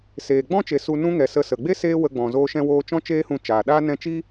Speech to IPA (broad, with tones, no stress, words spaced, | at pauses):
seː˨ɡ͡bɔ̃˦t͡ʃe˨ su˧nũ˦ŋɛ˨ sə˧sə˨ ɡ͡be˦ seː˦wə˧ɡ͡bɔ̃˨ zoː˧ʃɛ̃˧woː˧t͡ʃɔ̃˦ t͡ʃeː˦hũ˧t͡ʃaː˨ɗaː˦ nɛ̃˧t͡ʃi˦